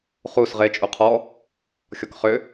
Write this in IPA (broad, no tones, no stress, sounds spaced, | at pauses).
χ u s ʁ e t͡ʃʼ u qʰ ɔ | xʲ ɔ k χ ʏ